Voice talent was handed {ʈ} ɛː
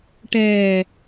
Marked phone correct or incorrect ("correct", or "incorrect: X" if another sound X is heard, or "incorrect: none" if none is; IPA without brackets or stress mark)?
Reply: correct